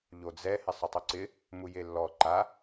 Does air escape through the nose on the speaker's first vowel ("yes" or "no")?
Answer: no